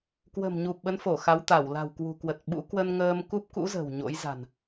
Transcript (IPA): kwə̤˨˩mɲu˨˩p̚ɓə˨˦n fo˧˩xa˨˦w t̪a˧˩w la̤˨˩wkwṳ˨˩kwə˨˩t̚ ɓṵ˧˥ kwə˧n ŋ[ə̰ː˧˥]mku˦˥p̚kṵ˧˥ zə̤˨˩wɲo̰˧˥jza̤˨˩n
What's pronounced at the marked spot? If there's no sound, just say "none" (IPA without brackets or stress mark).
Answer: əː˧